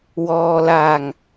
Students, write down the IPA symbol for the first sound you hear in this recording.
w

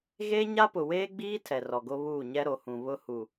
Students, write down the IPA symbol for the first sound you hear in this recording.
ɣ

